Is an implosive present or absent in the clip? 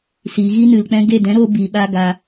present